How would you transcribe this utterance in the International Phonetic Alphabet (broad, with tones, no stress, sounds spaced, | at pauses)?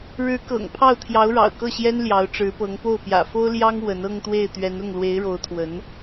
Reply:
ɻ ɻ̩˧˥ k ɤ̰˨˩ ŋ pʰ ɑ˥˩ ʊ̯ t̪ʰ j ɑ˧˥ ʊ̯ ɻ ɑ̰˨˩ ʊ̯ k ɤ˥˩ ɕ j ɛ˥ n l j ɑ˧˥ ʊ̯ ʈ͡ʂ ɻ̩˧˥ p ɤ˧˥ ŋ p o˥˩ ʊ̯ p j ä̰˨˩ f o˥ ʊ̯ l j ɑ˥ ŋ w ə˧˥ n ɤ˥˧ ŋ t̪ w e˥˩ ɪ̯ t̪ ɥ ɛ˧˥ n ʊ˥˩ ŋ l w e˧˥ ɪ̯ ɻ o˧˥ ʊ̯ t̪ʰ w ə˧˥ n